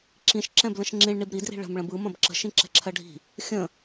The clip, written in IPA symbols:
ǁ ĩ ʃ ǁ ɛ̃ b l ə̃ ʃ ŋ͡ǁ ĩ ɭ ɳ i b ɾ i d r i̤ ɭ ə̤ m ɭ ə̃ b ɯ m ɐ̃ b ǁ ə̤ ʃ ĩ ǁ ɛ̤ ǁʰ ɜ ɖʱ i̤ | xʲ ə̃

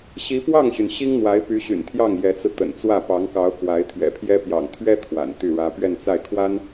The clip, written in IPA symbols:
ɕ i˧˥ p w ɑ˥˩ ŋ ɕ y˩ n ɕ i˥ ŋ n̪ w a˧˥ ɪ̯ p y˧˥ ɕ y̰˨˩ n t̪ʰ j ɑ˥˩ ŋ j ɛ˧˥ t͡s ɹ̩˧ t̪ ə̰˨˩ n t͡s w ä˥˩ p ɑ˧˥ ŋ k ɑ˧˥ ʊ̯ k w a˧˥ ɪ̯ t̪ʰ ɥ ɛ̰˨˩ pʰ j ɛ˥ p j ɑ̰˨˩ ŋ t̪ʰ ɥ ɛ˥ t̪ʰ w a̰˨˩ n t̪ y˥˩ ɻ ä˥ p ɥ ɛ˥˧ n t͡s a˥˩ ɪ̯ kʰ w a˥ n

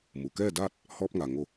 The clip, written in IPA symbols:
m u˩ k ɛː˥˨ d aː˥˨ t̚ | h ɔː˧ p̚ ŋ a˩ ŋ o˧˩

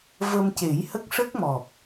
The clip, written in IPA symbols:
v ə˧ m c e˨˩˦ j h ə˦˥ k̚ ʂ ə˦˥ k̚ m ɔ˨˩ p̚

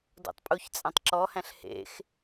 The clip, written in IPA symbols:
d o̰ tˤ pʼ u ç t͡sʼ æ̃ tˤ ǁ ɔ h æ̃ ɬ h ḛ x

